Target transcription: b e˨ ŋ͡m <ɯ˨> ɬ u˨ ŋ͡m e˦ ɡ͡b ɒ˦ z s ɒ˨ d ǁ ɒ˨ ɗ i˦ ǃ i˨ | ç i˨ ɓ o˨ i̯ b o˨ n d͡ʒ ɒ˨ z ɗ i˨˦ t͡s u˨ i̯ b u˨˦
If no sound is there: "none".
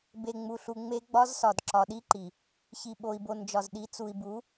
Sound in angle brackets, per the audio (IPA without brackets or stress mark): u˨